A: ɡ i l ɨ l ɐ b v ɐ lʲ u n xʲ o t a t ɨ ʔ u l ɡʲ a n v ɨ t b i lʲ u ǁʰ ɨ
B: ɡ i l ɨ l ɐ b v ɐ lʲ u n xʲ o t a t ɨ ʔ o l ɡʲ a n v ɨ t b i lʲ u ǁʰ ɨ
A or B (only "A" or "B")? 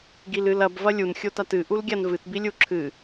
A